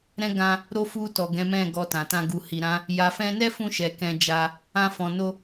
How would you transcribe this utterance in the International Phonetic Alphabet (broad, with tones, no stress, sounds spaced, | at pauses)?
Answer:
ɾ ɛ̃˧ ɡ ã˧ | ɾ o˧ f u˧ t ɔ˨ ɡ ɛ̃˨˦ m ɛ̃˦˨ ɡ ɔ˧ t ã˨ t ã˧ ɡ u˨ h i˨ ɾ ã˨˦ | j a˨ f ɛ̃˧ n ɛ˦ f ũ˧ ʃ ɛ˨ k ɛ̃˧ d͡ʒ a˧ | ã˧ f ɔ̃˨ n o˧